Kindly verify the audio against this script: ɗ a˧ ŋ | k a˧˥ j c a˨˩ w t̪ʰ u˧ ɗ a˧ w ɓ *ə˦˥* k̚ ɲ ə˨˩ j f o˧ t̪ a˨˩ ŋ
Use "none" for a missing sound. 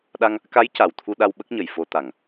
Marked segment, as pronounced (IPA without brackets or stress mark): ə˦˥